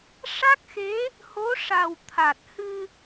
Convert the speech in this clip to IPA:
ʂa˦˥k̚xe˧˥ | ho˧˥ ʂa˨˩wt̪ʰa˨˩t̚ hɨ˧

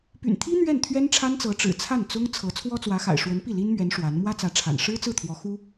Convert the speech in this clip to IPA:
py̰˨˩nt̪ʰi˥ n̪ɥɛ˥˩nt̪ʰɥɛ˥nʈ͡ʂʰa˥nt͡sɤ˧˥ ʈ͡ʂɻ̩˨˩t͡sʰa˥˩nt͡sʊ˥ŋ t͡sʰɤ˧˥ t͡sʰwɔ˥t͡swä˧˥xa̰˨˩ɪ̯ ʂwə˧˥npi˥˩ li˥nmɥɛ˧˥n ʂwa˧˥n mwä˥t͡sä˧˥ʈ͡ʂʰa̰˨˩n ʂɻ̩˥t͡sɹ̩˥˩t̪ʰwɔ˧˥ xu˥

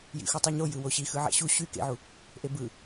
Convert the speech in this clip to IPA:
jḭxutˤoɲo jɯwoɕi xɯʕæ̰ɕu ɕy kḛʕu | ʔebɯ

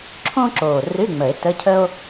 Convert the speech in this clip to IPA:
ǁʰõ˥ǁoː˨˩ rɨ˧˥˧ŋ͡mə˨˩˦e̯ tə˧˥˧cʰə˥o̯

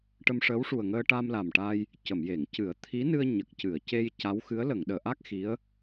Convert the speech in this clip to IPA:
ʈə˧mʂəː˧˥wʂu˨˩ə̯ŋəː˧ ʈa˧mla˨˩mʈa˧j | cə˨˩˨mje˨˩˨ŋcɨ˨˩˦ə̯ t̪ʰi˧˥nɨ˧ə̯ ɲə˨˩k̚cɨ˨˩˨ə̯ce˧j ca˧˥wxɨ˧˥ə̯ lə˨˩˨ŋɗəː˨˩˨ʔa˦˥k̚ xi˧˥ə̯

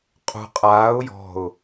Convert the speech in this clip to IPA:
qʼṳ qʼaːʊ̯ jɔ̤ʊ̯

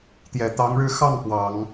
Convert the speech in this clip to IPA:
t̪jɛ˨˩t̪ɑ˧˥ŋɻɻ̩˥˧ xɑ˥˩ŋ pwɑ˨˩˦ŋ

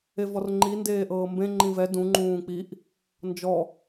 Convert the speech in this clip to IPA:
evɔrŋ͡ǃi ndeːʔɤːmbẽ ŋ͡ǃĩvɛ dũ ŋ͡ǃũːk͡piʔ | nd͡ʒɔ

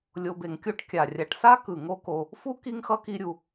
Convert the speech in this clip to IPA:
lʲo˨be˩ŋkʲo˦ʈ kʲa˩ rʲa˨ʈsa˥kɯ˩ ŋo˦ko˨ | fu˥ki˦ŋ xʌ˥ki˦ɾʲu˨

